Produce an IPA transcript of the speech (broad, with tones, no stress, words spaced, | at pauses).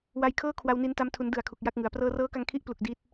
wa˧jkʰɤː˥˩kʰwa˧wni˧n ta˧mtʰu˩˦ndɯ˨˩a̯ kʰu˨˩k̚ja˥˩k̚ŋɯ˩˦a̯ prɤː˧rɤː˦˥ka˧ŋ kʰi˦˥ʔplu˨˩k̚ di˦˥t̚